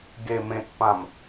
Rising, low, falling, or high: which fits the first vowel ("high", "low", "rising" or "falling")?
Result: low